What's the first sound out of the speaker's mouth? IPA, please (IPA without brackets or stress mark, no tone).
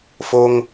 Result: f